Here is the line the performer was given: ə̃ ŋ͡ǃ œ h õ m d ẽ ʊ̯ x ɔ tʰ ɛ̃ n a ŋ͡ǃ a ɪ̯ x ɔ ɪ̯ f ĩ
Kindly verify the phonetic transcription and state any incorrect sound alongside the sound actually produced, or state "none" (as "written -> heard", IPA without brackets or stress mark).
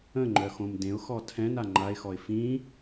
h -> x